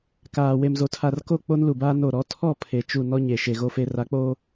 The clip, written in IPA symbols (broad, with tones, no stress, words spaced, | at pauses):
kaː˨ we˨mzo˨tʰa˨rko˦˨ k͡po˦nlu˨baː˦ no˦˨ ɾɔ˦ tʰɔ˦˨ pʰe˨t͡ʃu˦˨ nɔ˦ ɲe˨ ʃe˨ɣo˦fe˦ ra˨˦k͡poː˦